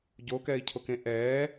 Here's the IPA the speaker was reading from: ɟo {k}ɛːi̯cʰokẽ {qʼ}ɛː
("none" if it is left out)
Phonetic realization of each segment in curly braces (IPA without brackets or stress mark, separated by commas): k, ʔ